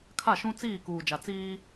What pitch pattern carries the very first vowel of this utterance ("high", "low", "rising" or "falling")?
falling